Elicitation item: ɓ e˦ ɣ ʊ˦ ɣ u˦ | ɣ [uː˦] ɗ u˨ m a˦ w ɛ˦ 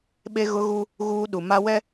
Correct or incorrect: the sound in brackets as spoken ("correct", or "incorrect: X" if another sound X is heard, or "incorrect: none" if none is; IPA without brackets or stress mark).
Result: correct